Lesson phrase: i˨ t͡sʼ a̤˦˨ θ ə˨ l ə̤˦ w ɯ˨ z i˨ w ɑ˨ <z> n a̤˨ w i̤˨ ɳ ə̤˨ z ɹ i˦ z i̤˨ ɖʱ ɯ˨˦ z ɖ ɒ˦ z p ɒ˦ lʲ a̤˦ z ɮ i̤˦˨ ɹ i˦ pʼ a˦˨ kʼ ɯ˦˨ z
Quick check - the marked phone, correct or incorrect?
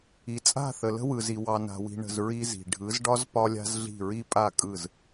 incorrect